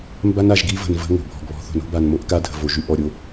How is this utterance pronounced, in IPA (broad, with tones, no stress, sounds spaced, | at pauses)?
m b a˦ n a˨ ʒ ɡ i˦ v ə̤˨ n v ə̤˦ ŋ o̤˨ bʱ ɔ̤˨ ɡ β ɔ̤˨ θ o̤˨ n o̤˦ b a˨ n m o˦ ʔ k a˦ dʱ ə̤˨ v o˨ ʒ y˦ ʔ ɔ˨ ɾʲ o˦